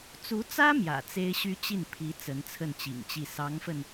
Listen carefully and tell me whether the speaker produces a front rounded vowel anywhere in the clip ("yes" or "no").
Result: yes